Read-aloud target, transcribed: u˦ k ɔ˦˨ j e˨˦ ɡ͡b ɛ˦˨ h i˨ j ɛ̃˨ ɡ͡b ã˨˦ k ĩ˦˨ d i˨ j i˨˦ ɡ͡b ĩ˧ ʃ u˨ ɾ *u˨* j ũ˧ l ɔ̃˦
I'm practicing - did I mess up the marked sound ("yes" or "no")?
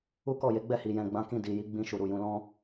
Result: no